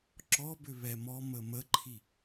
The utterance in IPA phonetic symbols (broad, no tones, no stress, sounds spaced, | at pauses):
ǁ ɔ b ʏ β ɛ m ɔ m ə m ə ǃʰ i